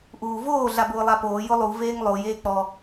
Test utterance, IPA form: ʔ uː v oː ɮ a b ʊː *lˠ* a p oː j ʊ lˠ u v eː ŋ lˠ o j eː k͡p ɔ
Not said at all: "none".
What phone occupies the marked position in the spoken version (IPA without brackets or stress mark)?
lˠ